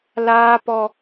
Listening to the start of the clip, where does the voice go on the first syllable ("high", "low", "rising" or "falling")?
high